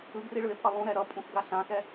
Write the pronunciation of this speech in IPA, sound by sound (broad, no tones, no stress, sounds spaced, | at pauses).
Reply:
ɯ ɡ r i ɭ ɯ e̯ pʼ ʌ lˠ ũ ɾ ɛ ɾ ʌ pʼ ũ x ɡ a ɬ ã x ɛ